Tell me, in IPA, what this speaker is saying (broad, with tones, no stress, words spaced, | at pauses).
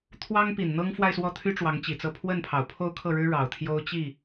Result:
t̪ʰwɑ˥ŋpi˨˩n n̪ɤ˥ŋfwa˥˧ɪ̯swɔ˥˩t̪ʰy˥ ʈ͡ʂwɑ˧˥ŋt͡ɕi˨˩t͡sɤ˥˧ pʰwə˥˩npʰɑ˨˩ʊ̯ pʰo˥˧ʊ̯kʰɤ˥˩ɻɻ̩˥ ɻɑ˨˩ʊ̯t̪ʰjo˥ʊ̯t͡ɕi˥˩